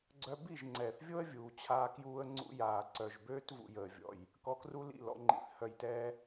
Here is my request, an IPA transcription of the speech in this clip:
ɡ͡ǀ œ˧ b i˦˨ ʒ ŋ͡ǀ ɛː˨ θ vʲ o˦ ə̯ vʲ uː˨ t͡ɕʰ aː˦ k j uː˦ ə̯ ŋ͡ǀ ṵ˧ j aː˨ ǀ œ˨ ʒ b øː˦ t v ṵ˧ j əː˨ vʲ ɔ̰˨ j | k ɔ˧ k r u˦ l ḭ˦˨ l ɔ̰˧ ŋ͡ǃ ḭ˧ θ h œ˧ j t ɛː˦

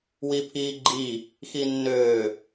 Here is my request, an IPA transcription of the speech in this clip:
w i pʰ iː ɡ͡ǃ i | x i nː øː

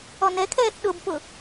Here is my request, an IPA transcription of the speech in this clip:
ɔ n ɛ kʰ ɛː θ ɗ ʊ b p ʊ

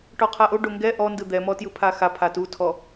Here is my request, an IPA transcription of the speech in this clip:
ʈ ɔ qʰ a ʔ o ɖ o ŋ ɡ ɛ ʔ ɔ n d ɯ d̪ ɛ m ɔ t j ɯ pʰ a x a pʰ a t u tʰ ɔ

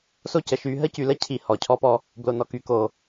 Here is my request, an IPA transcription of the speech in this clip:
s o˦ c ə˨ ʃ y˨˦ ɦ ə˦ c y˨ l ə˦ cʰ i˨ h ɔ˨ cʰ ɔ˦ p ɔ˦ | b l o˨ n ɔ˨ k y˨ k o˨

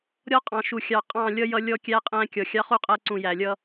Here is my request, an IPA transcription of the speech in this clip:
ɾʲ ɔ˦ qʼ ɑ̃˨ ʃ u˨ xʲ ɑ˨ qʼ ɑ̃˦˨ lʲ ʌ˦ j ʌ˦ lʲ ɔ˦ kʲ æ˦ qʼ æ̃˦ kʲ ɔ˨ xʲ ɑ˦ χ u˦ qʼ æ˦ ǀ ũ˨ j æ˨ lʲ ʌ˦

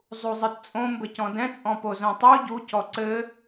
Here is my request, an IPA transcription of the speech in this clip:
zˤ u zˤ ɨ t t͡sʼ õ m b ɘ c ɔ̃ d ɛ̃ t͡sʼ ɔ̃ p o z õ tˤ u ɟ u c ɔ ǀ ɘ

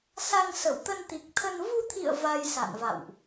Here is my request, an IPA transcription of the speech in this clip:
s a˧ ŋ s ə˧˩ w t̪ ə˧ n t̪ i˨˩ k̚ t̪ʰ ə˧ n v u˧ t̪ʰ ḭ˧˨ ə̯ v a˧ j s a̰˧˨ n v a̰˧˨ w ʔ

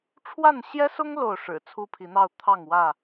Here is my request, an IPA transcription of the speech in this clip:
ʈ͡ʂʰ w a˥˨ n ɕ j ɛ˦ s ʊ˦ ŋ l o˥˨ ʊ̯ ʂ ɻ̩˨˩ t͡sʰ u˦ pʰ i˨˦ n̪ ɑ˥˨ ʊ̯ t̪ʰ ɑ˥˨ ŋ w ä˥˨

